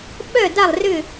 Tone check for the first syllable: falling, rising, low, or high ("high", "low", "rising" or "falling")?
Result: falling